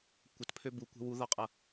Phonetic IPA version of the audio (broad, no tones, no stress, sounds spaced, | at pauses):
kʷ ə t pʰ ø b u kʷ ɛ̤ w u ð ɒ qʼ ʌ